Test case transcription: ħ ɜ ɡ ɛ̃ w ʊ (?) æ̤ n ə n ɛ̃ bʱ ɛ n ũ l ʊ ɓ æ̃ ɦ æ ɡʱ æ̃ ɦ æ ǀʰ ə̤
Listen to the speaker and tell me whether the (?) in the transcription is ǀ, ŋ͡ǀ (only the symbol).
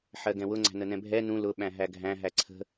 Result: ŋ͡ǀ